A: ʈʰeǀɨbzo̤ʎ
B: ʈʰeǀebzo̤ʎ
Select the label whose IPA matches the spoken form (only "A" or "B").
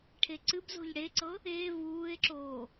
A